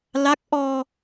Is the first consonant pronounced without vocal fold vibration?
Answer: no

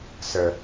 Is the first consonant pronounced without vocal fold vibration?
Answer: yes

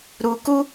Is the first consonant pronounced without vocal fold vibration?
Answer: no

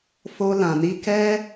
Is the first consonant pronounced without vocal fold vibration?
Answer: yes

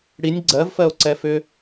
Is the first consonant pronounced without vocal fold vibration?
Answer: no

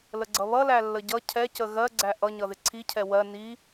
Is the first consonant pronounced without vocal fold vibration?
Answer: no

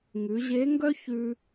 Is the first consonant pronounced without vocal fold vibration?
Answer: no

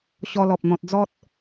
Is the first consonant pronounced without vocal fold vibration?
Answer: yes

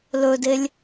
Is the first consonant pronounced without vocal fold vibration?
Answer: no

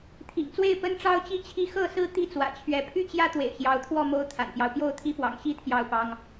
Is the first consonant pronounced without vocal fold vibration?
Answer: yes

